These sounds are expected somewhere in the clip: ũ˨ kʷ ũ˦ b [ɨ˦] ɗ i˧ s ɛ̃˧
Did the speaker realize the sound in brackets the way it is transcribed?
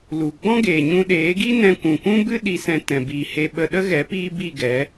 yes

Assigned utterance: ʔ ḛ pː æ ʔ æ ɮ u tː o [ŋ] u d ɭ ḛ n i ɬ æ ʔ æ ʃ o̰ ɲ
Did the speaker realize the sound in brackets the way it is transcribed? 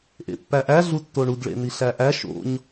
no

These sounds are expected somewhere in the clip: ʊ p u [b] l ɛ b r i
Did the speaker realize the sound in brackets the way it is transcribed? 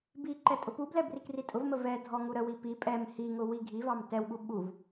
yes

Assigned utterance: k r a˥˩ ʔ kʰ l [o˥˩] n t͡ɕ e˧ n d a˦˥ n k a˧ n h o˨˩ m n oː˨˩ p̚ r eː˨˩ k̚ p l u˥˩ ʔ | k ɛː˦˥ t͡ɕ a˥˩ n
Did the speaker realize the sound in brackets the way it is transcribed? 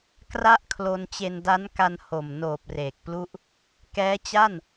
no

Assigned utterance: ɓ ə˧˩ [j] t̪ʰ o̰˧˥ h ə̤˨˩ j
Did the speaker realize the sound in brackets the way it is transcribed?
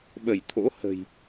yes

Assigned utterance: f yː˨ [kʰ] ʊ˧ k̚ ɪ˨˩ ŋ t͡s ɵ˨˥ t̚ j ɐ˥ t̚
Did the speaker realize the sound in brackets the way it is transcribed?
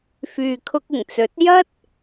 yes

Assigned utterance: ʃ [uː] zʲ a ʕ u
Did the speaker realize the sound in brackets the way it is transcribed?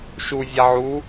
no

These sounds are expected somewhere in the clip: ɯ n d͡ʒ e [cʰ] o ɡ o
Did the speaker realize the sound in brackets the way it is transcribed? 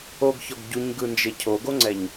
yes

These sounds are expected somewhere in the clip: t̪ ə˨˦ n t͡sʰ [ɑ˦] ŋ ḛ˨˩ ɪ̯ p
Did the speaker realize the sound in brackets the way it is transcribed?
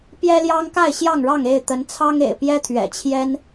yes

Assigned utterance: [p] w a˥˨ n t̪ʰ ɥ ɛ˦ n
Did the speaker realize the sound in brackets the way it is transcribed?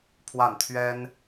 no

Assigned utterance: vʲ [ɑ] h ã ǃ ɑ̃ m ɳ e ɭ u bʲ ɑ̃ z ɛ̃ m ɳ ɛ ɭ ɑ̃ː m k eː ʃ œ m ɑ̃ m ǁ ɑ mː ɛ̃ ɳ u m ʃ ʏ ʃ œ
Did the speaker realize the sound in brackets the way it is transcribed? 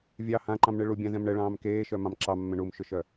yes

